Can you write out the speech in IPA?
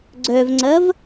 ɡ͡ǀœvŋ͡ǀɐv

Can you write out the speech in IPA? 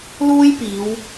luː˥jpiː˨˧w

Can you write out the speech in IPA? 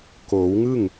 koː˩˦wŋɯ˥˩ŋ

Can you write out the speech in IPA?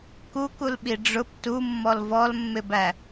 kukulɓi ɖ͡ʐʊp tumːɔl vɔlmːɪbæ

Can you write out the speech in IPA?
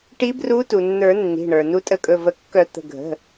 ʈi˨˦bru˨˦ tu˩nːə˞˨˩˦ nːi̤˩˧˩ɳə˞˩ nu˨˦tʼə˨˩˦kʼɵ˩˧˩və˨˩˦ kːœ˨˩˦ t̪ə̤˩˧˩ɡʱə̤˩˧˩

